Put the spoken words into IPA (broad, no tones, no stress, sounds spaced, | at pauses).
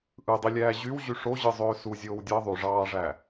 ʔ ɯ dˤ i lʲ æː ʑ y w ʑ y ʂ o ʑ ɯ zˤ øː s u zʲ oː w dʲ ɑ ðˤ y ʐ ɑː ʐ æ